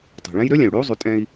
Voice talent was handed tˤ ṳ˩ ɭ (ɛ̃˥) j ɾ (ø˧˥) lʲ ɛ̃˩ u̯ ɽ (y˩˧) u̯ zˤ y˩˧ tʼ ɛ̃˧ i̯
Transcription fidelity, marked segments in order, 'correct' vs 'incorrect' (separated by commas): correct, correct, incorrect